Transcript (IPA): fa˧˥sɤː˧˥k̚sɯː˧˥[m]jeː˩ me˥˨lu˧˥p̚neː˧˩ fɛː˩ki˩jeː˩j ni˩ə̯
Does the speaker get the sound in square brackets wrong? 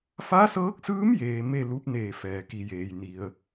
no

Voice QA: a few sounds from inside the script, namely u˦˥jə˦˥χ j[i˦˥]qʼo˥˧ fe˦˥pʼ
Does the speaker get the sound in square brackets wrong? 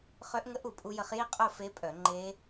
yes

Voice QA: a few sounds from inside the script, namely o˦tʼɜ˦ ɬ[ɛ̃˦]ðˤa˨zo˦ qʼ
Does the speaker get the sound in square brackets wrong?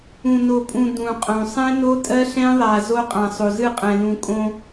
no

